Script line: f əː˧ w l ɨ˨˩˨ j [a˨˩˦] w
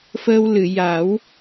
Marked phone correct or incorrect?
correct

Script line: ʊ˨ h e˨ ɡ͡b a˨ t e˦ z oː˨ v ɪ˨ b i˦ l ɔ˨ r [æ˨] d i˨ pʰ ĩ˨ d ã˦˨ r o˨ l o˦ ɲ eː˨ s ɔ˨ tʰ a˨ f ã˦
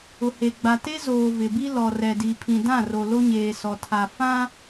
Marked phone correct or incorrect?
incorrect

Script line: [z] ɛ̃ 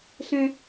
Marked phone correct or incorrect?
incorrect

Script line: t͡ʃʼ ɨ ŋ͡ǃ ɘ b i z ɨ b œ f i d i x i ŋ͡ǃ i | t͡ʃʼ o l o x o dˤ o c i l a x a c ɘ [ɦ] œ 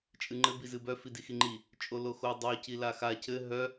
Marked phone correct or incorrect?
correct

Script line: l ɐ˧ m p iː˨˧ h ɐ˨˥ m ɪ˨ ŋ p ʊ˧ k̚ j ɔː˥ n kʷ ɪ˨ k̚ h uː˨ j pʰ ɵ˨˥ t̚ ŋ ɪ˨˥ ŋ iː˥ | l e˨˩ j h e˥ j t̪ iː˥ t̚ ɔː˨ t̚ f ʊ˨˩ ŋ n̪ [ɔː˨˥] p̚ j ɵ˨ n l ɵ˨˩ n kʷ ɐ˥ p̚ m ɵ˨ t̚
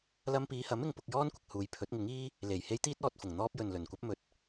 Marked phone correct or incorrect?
incorrect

